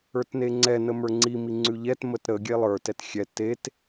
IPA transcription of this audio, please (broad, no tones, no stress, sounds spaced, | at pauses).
ə˞ t n e ŋ͡ǀ ɛ n ə m ə˞ ŋ͡ǀ i m i ŋ͡ǀ ʉ ʎ ɛ t m ə t ɾ ə ɡʲ e lˠ ə˞ t ɛ t xʲ ɛ t e t